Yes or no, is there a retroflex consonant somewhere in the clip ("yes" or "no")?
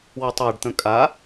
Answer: yes